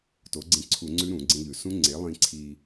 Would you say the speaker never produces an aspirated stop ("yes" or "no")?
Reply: no